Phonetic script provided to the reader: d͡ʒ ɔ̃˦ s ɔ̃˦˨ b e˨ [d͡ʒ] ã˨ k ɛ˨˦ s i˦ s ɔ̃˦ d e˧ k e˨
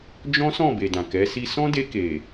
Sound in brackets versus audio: incorrect: d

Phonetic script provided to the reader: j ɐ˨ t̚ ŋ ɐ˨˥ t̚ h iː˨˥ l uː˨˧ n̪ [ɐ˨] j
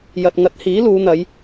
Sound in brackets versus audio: incorrect: ɐ˨˧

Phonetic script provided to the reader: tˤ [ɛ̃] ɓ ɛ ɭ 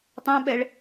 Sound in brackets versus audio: correct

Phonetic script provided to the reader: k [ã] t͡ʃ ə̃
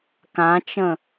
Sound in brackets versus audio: correct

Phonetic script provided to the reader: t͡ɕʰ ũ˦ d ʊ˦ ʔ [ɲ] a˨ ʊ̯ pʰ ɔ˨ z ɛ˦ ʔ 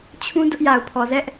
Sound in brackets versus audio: incorrect: j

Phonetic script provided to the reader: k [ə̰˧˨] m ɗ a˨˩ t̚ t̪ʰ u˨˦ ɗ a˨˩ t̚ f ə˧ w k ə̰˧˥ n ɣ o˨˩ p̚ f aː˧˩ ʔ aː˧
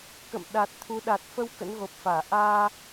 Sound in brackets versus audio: correct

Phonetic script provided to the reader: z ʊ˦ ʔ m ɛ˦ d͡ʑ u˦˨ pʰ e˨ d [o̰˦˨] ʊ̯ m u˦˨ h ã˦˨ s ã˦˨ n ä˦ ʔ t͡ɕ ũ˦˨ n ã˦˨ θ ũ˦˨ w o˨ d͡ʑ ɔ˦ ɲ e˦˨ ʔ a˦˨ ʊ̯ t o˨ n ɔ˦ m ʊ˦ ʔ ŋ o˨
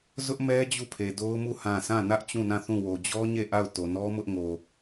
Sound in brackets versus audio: incorrect: o˦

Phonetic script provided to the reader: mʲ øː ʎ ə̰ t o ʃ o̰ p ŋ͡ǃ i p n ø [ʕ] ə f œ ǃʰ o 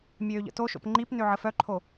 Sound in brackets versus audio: correct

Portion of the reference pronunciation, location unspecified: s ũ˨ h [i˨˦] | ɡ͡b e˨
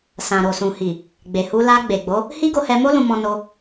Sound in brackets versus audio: incorrect: i˨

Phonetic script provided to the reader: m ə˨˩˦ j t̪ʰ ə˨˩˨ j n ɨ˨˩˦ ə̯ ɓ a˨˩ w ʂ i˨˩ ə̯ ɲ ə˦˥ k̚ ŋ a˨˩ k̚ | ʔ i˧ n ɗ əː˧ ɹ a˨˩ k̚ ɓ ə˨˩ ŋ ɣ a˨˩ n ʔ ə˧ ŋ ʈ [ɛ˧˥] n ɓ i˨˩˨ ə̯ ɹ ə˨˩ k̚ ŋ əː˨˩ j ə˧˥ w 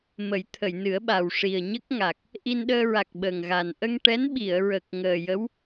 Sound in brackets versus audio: correct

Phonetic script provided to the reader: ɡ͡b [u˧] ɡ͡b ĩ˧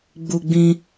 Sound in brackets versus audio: correct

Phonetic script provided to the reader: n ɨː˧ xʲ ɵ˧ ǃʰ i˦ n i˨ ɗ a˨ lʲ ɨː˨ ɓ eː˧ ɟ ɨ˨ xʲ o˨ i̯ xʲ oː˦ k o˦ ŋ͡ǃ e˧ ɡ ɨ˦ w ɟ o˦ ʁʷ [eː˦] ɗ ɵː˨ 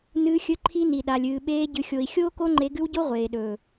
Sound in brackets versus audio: incorrect: eː˨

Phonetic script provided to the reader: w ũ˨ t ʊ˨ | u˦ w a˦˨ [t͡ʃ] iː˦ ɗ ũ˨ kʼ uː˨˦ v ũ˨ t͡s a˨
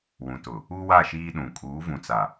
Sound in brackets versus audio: incorrect: ʃ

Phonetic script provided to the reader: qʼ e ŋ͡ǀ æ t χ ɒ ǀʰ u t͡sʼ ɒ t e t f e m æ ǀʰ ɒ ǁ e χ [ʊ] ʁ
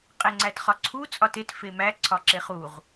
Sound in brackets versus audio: incorrect: u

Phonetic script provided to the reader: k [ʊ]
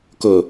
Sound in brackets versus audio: correct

